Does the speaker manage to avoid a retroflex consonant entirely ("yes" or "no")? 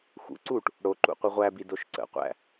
no